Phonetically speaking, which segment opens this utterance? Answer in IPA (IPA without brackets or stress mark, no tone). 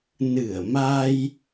n